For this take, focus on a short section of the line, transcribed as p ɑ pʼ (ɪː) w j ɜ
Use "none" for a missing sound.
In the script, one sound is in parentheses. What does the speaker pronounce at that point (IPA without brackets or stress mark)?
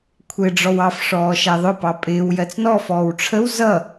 ɪː